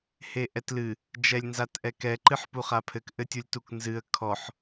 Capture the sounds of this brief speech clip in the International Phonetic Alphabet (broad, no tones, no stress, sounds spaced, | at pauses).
h e ʔ ɛ t l ɨ | d͡ʒ ɛ lʲ n z a t ʔ ɛ k ɛ ǃ ɨ ħ p u χ a pʰ ɘ k ʔ ɘ tʲ u lʲ t u k n z ɨ ə̯ kʰ ɔ ħ